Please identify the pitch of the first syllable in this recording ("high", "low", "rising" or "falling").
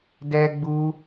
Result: high